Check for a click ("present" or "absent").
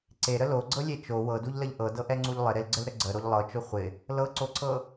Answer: present